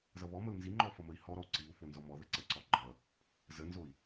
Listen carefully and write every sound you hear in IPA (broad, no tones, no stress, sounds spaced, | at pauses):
z ʌ β ɔ m ə u̯ n z i ŋ͡ǃ ɔ f ʌ m ə i̯ h ɔ ɾ ɔ u̯ ǀ i u̯ f o n z ɔ m ɔ ð ə ǀ ə ǀ ɔ ɡ͡ǃ ʌ | z ə n z o i̯